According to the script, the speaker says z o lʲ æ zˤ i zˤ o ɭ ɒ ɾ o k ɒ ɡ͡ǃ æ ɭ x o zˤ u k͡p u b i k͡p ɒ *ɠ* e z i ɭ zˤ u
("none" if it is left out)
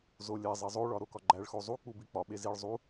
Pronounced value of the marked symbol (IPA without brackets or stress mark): ɓ